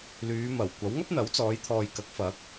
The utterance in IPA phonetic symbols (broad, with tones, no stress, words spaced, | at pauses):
lyː˨˧mɐ˨˩wkʷɐ˨˥w ŋɐ˥p̚n̪ɐ˨˥wt͡sɔː˨˧jt̪ʰɔː˨j kɐ˨˥k̚fɐ˨˥k̚